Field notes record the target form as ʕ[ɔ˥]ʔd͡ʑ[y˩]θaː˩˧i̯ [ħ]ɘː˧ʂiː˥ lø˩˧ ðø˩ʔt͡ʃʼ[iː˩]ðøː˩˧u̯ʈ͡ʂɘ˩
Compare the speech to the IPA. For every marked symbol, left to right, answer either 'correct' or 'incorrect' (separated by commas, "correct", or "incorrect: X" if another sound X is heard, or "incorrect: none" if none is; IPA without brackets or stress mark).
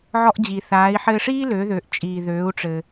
incorrect: ɔ˧, incorrect: i˩, correct, correct